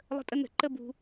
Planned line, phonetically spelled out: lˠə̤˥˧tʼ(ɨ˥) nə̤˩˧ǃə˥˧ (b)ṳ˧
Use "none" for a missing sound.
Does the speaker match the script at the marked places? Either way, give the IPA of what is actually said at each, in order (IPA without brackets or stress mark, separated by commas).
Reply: ə˥, b